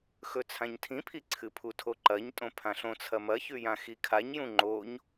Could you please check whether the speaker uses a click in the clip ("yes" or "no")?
yes